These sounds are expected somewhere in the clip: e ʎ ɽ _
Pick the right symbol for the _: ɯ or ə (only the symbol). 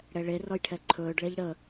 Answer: ə